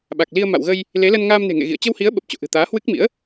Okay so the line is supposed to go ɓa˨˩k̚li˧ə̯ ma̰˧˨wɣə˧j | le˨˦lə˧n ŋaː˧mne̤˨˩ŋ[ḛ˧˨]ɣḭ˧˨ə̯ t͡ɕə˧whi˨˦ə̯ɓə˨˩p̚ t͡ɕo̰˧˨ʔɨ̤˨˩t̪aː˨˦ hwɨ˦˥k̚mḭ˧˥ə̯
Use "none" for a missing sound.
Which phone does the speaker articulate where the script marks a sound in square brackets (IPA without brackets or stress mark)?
ḛ˧˨